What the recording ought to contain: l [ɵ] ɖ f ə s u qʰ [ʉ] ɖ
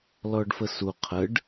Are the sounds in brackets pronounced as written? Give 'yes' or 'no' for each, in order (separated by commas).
no, no